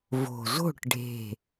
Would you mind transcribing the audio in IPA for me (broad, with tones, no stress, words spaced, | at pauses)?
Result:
vo̤˨˩zo̤˥˨ʈ ɖʱe̤˨˩